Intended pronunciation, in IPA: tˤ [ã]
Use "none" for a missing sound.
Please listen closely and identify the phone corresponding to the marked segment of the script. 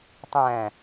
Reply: æ̃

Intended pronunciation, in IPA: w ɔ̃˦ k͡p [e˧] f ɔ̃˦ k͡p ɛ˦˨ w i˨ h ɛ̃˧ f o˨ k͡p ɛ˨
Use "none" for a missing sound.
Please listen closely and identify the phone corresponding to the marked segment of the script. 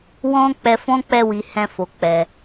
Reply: ɛ˧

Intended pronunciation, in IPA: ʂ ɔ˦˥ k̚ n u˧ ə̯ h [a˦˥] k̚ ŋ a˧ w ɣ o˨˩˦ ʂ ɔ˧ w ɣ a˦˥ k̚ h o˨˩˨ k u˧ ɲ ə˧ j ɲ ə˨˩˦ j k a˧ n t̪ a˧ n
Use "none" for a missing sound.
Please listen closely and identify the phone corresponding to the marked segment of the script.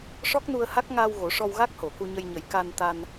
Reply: a˦˥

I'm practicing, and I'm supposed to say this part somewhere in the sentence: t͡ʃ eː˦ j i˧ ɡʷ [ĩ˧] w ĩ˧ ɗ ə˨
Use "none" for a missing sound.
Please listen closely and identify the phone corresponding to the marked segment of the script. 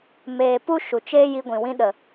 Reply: ĩ˨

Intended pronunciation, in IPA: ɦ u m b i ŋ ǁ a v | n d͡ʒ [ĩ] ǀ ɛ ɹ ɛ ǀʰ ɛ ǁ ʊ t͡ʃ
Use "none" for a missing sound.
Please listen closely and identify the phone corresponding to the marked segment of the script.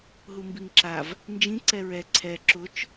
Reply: ĩ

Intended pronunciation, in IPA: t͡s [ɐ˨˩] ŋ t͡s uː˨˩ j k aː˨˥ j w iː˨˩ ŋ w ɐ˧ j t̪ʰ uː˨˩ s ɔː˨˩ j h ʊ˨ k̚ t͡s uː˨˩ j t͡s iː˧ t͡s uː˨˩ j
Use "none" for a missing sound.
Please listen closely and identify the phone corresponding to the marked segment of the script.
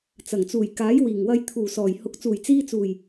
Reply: ɐ˨˩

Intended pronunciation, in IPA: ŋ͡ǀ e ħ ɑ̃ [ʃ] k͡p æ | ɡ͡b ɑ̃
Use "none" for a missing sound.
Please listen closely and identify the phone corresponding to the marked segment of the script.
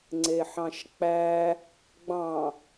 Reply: ʃ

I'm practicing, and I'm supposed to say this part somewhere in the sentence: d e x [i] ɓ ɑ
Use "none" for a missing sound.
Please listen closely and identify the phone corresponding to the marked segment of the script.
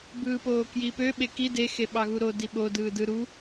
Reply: e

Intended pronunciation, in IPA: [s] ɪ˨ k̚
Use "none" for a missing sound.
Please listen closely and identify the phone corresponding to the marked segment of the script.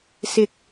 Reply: s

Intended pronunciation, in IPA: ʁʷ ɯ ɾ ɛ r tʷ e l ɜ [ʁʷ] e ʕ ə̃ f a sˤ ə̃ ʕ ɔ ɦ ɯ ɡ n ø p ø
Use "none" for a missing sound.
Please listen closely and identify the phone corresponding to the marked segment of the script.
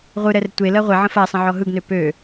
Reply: ʁʷ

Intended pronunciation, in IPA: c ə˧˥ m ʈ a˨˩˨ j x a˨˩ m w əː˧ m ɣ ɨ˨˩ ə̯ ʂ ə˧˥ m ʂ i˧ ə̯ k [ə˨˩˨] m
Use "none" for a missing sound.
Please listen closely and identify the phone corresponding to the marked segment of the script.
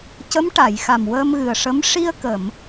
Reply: ə˨˩˨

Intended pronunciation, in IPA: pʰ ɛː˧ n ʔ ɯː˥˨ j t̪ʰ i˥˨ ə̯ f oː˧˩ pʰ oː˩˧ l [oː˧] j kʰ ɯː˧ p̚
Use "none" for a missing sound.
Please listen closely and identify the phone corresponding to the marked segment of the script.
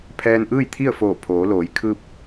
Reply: oː˩˧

